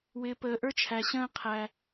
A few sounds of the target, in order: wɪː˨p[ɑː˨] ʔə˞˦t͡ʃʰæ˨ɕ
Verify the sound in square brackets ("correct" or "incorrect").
incorrect